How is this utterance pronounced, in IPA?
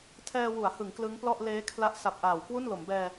tʰ ɛː˧ w u˩˦ a̯ h ɯ˩˦ ŋ k l ɯ˦˥ ŋ p l ɔ˥˩ ʔ l eː˦˥ kʰ l a˦˥ ʔ s a˨˩ p̚ ʔ aː˨˩ w k w u˥˩ n l o˩˦ m b ɛː˧

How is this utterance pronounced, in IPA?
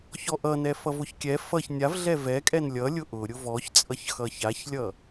ç ɔ ʔ ʌ n ɛ f ʌ v ʊ ç kʲ ɛ f ʌ ç nʲ a v ɮ ɛ v ɛ kʼ ɛ n lʲ ʌ lʲ ʊ ʔ ʊ ɾʲ ʊ v ɔ ç t͡sʼ ʌ ç x ʌ ç a ç lʲ ʌ

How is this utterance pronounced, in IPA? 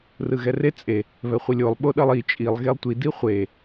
r ɯ ɣ ɛ r e t͡sʼ e | β ɛ χʷ i lʲ o lˠ ɓ o ɗ ʌ lˠ i t͡ʃʼ i lˠ ɣ e lˠ tʷ i d i χʷ e

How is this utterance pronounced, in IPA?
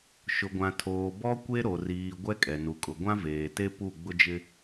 ʃ ʊ˨ ɡʷ ã˨ tʰ oː˨ b ɔ˦ kʷ e˦ ɾ o˨ r iː˨ ɡʷ ɛ˦ kʼ ɛ˨ n u˨ kʼ ʊ˨ ɡʷ ã˦ v eː˨ t e˦ p u˦˨ ɡ͡b ʊ˦ d͡ʒ ɪ˦

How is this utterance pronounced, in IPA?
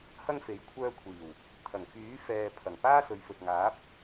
h ɐ˥ ŋ f e˨˥ j kʷʰ œː˧ kʷʰ iː˨˩ w | t̪ʰ ɐ˨˩ ŋ f yː˨˥ f ɛː˨ pʰ ɐ˨˩ ŋ p aː˥ s ɵ˨˧ ɥ f ɵ˨ t̚ ŋ aː˨˥ p̚

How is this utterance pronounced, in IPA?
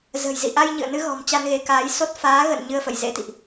z ə̤˨˩ j z ḭ˧˨ ʔ a˧ j ɲ ɨ̰˧˨ ə̯ n ɨ˧ ɣ ɔ̤˨˩ m t͡ɕ a˧ n ɣ e˨˦ k aː˨˦ j s o˦˥ t̚ f aː˨˦ ɣ ə̰˧˨ n ɲ ɨ˧ ə̯ f ə̰˧˨ j z ḛ˧˥ t̪ ḭ˧˨ ʔ

